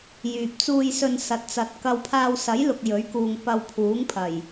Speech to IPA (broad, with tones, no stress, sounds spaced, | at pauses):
j yː˨ p̚ t͡s uː˨ j s ɵ˨ n s ɐ˨˥ t̚ t͡s ɐ˨ t̚ k ɐ˧ w pʰ aː˧ w s ɐ˨˥ j l ʊ˨ k̚ j ɵ˨˥ ɥ k uː˨ ŋ p ɐ˧ w pʰ uː˨˥ ŋ pʰ ɐ˨˩ j